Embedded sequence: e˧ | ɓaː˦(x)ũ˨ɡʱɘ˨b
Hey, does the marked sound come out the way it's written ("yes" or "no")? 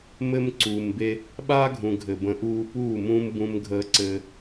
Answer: no